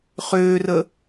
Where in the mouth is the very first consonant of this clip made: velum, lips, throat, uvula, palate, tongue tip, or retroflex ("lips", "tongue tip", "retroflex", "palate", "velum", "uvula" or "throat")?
uvula